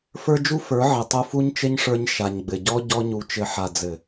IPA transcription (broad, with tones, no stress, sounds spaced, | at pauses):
f ə˞˦ d͡ʒ u˦ f ə˞˨˦ ʕ ɘ˨ tˤ u˧ f u˦ ɲ t͡ʃ ɘ˦ ɲ ʂ ə˞˧ ɲ ʃ a˨ ɲ ɡ͡b ɘ˨ ɟ ɔ˦ ɟ ɔ˦ ɲ u˧ t͡ʃ ɘ˧ ħ a˨ d͡z ɘ˨